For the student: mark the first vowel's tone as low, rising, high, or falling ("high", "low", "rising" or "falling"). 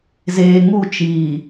low